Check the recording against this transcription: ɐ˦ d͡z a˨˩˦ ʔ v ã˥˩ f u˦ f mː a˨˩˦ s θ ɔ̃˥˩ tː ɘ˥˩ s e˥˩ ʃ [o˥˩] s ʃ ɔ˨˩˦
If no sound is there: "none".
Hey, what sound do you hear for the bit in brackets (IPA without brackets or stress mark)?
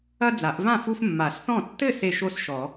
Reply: o˥˩